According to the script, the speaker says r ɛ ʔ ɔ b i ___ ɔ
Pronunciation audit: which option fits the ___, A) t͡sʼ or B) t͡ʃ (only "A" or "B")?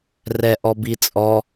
A